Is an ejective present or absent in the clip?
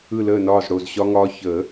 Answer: absent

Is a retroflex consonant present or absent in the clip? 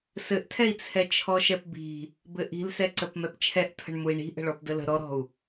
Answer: present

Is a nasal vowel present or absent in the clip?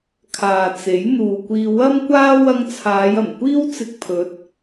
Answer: absent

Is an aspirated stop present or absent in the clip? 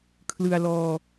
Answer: present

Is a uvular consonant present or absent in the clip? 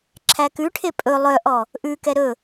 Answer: absent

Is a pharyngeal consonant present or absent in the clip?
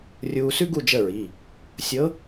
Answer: absent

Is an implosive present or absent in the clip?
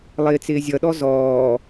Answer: present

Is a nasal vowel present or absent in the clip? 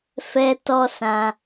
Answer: present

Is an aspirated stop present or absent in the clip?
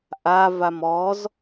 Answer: absent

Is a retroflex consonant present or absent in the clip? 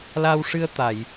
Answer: present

